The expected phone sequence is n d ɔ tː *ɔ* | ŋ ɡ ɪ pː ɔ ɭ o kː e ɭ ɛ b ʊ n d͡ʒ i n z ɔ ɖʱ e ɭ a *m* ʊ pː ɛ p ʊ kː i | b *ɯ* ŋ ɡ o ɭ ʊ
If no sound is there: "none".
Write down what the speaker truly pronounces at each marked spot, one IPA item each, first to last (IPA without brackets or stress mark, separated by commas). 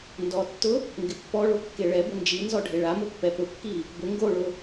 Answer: ʊ, m, ʊ